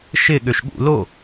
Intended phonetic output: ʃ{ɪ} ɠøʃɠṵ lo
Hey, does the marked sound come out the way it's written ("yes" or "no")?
yes